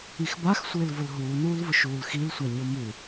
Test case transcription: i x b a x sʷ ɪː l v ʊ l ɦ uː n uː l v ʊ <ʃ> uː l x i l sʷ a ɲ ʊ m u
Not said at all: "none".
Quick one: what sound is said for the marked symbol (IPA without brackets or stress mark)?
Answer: ʃ